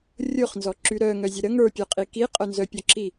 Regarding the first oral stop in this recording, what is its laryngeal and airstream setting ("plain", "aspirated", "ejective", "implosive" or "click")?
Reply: click